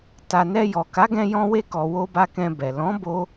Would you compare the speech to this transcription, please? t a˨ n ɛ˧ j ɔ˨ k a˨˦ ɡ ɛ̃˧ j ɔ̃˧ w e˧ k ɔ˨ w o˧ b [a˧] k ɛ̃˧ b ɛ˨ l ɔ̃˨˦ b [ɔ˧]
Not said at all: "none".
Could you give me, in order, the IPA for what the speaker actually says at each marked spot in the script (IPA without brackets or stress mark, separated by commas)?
a˧, o˧